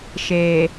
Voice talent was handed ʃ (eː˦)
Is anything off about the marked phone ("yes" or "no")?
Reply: yes